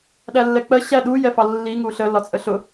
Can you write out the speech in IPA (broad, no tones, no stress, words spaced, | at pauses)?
ɗælːɛk͡pɜ ɕæ ɗu jɛfɑlːi ŋuɬə lɒt͡sʼəɬʊ